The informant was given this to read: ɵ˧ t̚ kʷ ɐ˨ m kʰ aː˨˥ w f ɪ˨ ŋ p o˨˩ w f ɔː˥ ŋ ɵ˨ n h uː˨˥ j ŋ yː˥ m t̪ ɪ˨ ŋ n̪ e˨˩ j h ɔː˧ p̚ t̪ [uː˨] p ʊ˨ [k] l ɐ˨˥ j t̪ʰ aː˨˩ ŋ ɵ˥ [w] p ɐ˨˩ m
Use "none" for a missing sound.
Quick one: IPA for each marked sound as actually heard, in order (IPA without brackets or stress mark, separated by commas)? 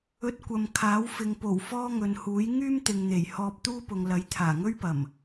uː˥, ŋ, ɥ